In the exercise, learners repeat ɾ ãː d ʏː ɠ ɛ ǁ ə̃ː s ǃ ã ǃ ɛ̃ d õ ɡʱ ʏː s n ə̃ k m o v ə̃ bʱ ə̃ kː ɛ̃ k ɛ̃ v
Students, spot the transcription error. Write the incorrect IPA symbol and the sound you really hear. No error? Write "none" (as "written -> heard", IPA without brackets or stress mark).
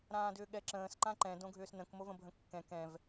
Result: none